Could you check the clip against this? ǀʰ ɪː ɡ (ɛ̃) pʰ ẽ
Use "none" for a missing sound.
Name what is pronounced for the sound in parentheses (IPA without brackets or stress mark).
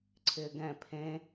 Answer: ɛ̃